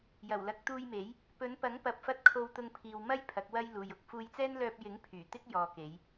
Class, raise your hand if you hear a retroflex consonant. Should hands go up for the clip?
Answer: no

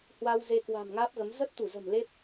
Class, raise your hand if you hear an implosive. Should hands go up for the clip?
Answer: no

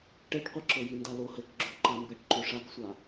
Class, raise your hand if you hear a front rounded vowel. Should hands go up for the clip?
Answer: no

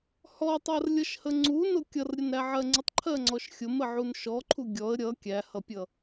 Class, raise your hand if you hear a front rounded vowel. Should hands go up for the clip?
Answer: no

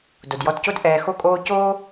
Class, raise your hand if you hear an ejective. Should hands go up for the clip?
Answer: yes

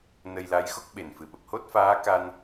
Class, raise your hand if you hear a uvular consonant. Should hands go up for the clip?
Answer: no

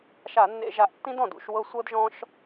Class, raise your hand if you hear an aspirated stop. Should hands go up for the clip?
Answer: no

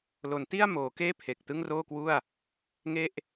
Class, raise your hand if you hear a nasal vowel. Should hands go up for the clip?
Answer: no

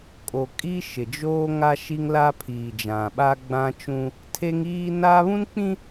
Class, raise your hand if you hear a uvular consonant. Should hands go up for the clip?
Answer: no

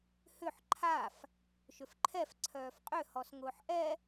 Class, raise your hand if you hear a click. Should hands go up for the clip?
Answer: yes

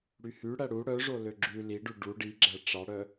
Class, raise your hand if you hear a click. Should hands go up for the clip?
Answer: yes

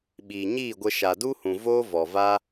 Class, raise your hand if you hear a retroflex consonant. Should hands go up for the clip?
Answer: no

